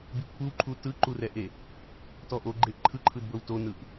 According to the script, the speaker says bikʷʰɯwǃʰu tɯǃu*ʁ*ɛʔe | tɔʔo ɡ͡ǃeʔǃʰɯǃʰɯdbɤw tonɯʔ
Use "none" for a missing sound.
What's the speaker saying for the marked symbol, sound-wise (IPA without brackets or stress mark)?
r